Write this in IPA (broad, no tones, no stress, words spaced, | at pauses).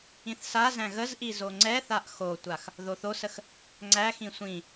ĩθsazæ̃ ɣəzʔi zoŋ͡ǀɛθaʔ xotʷax | ðoθosəx | ŋ͡ǀæxĩ sʷĩ